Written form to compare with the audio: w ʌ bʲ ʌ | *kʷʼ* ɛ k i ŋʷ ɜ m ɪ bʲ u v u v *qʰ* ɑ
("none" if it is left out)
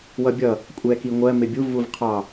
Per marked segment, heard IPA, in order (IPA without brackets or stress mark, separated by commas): kʷʼ, qʰ